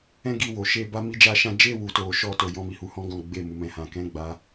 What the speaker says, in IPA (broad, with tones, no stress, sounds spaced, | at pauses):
ɛ̃˦ ɡ i˧ w o˨ ʃ e˧ b a˧ m i˧ d͡ʒ a˧ ʃ ã˧ d͡ʒ e˧ w u˧ t o˧ ʃ ɔ˧ t o˧ j ɔ̃˧ m i˨ h u˧ h ɔ̃˦ ɡ ɔ̃˧ ɡ͡b e˧ m u˨ m ɛ̃˨˦ h ã˧ k ɛ̃˦ ɡ͡b a˧